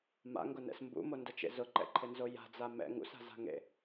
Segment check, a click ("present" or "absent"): present